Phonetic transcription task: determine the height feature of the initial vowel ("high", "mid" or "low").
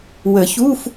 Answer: mid